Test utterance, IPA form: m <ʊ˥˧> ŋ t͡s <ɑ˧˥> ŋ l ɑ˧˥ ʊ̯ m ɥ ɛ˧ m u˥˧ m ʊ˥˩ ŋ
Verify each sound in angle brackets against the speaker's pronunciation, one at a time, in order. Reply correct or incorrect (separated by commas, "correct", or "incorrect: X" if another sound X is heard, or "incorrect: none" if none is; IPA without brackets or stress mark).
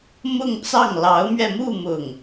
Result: correct, incorrect: ɑ˥˩